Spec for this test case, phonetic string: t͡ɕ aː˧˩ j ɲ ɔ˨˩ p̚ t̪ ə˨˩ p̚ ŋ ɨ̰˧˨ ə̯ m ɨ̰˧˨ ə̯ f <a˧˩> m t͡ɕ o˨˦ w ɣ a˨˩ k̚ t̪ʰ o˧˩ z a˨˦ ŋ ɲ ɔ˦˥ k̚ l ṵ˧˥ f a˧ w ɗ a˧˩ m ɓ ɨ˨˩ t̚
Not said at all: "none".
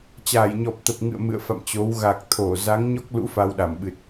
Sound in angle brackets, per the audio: a̰˧˨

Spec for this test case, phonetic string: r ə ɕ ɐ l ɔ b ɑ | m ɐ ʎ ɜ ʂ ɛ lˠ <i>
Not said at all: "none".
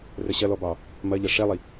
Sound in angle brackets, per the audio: i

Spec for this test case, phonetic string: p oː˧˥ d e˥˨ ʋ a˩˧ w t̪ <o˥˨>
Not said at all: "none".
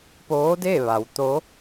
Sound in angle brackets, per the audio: o˧˥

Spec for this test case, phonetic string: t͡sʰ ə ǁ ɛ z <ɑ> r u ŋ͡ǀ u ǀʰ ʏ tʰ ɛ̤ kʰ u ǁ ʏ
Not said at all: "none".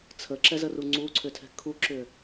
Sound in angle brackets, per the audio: ə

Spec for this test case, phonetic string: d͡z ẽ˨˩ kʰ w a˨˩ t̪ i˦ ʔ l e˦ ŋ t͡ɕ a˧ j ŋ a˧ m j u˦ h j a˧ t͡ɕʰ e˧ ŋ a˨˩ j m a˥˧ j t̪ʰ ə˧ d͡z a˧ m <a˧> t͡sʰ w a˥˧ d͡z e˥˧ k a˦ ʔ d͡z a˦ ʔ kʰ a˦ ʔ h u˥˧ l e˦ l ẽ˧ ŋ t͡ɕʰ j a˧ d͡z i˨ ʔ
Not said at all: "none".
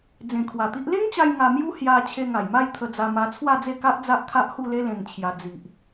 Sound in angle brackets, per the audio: a˧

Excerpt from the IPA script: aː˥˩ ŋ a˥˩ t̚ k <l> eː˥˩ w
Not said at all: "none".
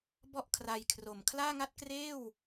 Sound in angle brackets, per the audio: r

